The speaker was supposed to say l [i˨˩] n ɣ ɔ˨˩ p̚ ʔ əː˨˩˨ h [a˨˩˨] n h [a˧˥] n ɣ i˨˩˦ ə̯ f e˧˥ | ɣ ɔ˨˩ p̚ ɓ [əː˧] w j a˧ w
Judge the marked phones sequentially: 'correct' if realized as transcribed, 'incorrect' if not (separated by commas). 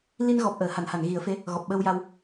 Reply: incorrect, correct, incorrect, correct